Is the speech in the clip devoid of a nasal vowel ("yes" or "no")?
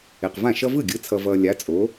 no